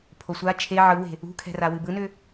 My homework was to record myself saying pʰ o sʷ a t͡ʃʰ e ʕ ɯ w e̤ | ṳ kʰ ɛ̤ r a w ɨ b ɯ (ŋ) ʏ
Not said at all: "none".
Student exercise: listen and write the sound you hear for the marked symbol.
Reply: n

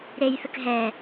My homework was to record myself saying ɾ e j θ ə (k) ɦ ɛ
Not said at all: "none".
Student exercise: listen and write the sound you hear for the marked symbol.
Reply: k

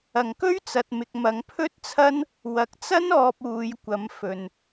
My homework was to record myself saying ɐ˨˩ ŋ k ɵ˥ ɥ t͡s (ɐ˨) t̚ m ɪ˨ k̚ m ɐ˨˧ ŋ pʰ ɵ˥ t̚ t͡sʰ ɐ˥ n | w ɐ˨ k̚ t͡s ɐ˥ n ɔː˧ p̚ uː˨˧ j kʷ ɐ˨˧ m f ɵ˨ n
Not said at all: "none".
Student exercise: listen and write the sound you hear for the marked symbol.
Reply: ɐ˨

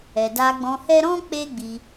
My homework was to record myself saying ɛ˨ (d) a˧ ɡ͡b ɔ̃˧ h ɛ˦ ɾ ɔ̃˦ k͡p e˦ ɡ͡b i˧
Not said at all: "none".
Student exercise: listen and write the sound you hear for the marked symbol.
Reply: d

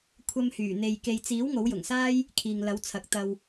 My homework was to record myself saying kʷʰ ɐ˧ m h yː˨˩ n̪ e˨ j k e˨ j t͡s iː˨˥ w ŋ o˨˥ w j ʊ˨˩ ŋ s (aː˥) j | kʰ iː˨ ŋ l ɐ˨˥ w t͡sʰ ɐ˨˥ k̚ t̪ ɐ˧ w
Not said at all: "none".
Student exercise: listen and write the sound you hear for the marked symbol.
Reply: aː˥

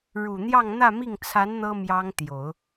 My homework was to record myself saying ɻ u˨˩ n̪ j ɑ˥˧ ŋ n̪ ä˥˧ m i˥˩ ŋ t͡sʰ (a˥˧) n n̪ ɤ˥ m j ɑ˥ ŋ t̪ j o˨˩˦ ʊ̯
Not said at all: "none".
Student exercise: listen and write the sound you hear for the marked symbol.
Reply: a˧˥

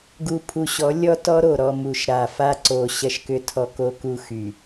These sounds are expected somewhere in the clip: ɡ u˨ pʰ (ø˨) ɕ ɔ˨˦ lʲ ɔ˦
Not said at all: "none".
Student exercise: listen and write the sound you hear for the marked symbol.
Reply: u˨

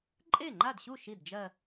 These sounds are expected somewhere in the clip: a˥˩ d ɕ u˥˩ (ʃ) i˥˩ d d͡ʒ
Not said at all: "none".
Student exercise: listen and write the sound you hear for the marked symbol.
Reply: ʃ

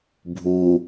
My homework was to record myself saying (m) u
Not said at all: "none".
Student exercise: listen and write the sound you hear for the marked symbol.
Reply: bʱ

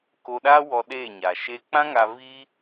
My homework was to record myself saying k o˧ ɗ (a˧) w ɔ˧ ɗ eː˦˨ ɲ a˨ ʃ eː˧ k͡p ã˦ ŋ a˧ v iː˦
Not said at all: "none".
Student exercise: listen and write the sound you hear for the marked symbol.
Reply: a˦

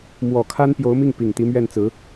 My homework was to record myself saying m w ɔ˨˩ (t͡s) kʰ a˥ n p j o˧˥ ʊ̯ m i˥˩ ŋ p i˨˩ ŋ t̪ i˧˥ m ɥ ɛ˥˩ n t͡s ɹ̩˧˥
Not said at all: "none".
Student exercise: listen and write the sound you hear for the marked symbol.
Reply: none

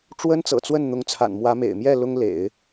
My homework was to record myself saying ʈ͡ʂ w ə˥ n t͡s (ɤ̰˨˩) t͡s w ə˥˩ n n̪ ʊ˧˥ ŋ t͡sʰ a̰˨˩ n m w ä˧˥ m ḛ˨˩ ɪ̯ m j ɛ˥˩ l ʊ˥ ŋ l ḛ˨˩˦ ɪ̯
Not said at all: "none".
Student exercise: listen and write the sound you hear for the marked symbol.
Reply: ɤ̰˨˩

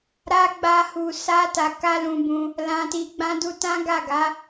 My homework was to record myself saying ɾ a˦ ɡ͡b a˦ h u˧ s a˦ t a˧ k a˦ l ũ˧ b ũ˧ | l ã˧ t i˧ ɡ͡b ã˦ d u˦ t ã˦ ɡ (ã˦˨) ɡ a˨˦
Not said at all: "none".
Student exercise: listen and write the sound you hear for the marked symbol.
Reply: a˦˨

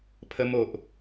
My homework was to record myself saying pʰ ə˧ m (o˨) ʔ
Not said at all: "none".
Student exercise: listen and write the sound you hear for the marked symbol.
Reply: o˨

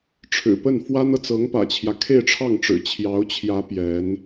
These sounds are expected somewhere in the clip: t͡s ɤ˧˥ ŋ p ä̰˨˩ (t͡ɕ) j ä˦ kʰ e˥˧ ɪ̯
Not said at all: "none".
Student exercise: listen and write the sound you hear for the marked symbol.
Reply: t͡ɕʰ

